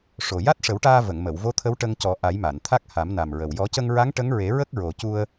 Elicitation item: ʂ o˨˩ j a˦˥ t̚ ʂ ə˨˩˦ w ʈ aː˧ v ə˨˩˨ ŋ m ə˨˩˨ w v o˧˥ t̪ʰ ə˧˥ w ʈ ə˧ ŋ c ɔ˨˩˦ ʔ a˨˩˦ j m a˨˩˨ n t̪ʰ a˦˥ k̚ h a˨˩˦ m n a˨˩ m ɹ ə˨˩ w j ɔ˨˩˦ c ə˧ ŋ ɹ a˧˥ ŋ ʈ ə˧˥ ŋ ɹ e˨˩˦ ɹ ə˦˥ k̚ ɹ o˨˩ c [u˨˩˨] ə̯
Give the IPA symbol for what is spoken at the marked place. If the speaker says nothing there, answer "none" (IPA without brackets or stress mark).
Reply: u˧